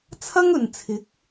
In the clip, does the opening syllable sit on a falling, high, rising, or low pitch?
high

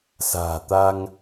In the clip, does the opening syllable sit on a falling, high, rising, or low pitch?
low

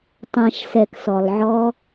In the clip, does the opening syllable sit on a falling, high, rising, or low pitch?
low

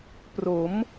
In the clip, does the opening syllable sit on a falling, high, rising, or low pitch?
rising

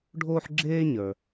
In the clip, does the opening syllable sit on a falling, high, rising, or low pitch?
high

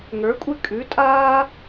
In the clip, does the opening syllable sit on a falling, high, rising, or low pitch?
rising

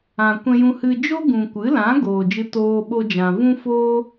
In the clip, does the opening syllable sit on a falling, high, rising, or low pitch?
low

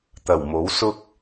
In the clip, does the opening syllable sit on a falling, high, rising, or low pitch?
low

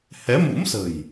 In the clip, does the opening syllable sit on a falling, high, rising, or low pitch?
rising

